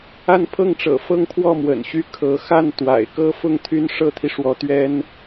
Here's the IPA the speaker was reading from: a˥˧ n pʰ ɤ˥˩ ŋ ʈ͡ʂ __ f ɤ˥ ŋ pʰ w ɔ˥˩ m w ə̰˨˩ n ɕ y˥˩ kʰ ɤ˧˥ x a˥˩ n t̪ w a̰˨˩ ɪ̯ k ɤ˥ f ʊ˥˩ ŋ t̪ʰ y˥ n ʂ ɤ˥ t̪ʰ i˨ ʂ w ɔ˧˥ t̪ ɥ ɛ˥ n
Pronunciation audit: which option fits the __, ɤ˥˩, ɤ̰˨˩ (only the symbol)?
ɤ̰˨˩